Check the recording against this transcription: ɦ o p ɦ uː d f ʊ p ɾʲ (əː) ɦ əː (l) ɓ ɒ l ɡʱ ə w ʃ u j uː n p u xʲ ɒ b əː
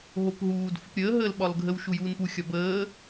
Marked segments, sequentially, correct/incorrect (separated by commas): correct, correct